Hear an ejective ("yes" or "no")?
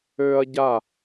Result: no